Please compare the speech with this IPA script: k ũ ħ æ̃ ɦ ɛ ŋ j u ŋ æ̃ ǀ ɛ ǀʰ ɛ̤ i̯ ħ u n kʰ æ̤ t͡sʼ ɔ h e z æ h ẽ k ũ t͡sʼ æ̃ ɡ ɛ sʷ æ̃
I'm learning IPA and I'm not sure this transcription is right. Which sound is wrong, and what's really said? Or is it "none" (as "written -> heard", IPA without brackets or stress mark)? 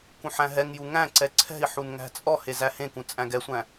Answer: kʰ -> ŋ